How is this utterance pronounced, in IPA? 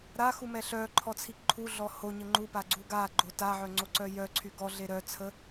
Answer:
ɾaxumɛ ɬœǃʰɔt͡sʰi ǃʰuɮɔ hoɲə ŋ͡ǃupaɡ͡ǀu ɡaɡ͡ǃo taʕœŋ͡ǀoǀœ jœǀʰy ɡɔɮe ɾœt͡sʰə

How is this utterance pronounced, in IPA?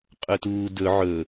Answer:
qʼɵtuːdɵ ʕɵ

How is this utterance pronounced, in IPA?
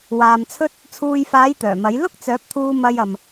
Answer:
waː˨mt͡sʰɵ˥t̚ | t͡sʰuː˨jfaː˨˧j t̪œː˨˩mɐ˨˥j lʊ˥k̚t͡sœː˨˥p̚t̪ʰuː˧ mɐ˧j ɐ˨m

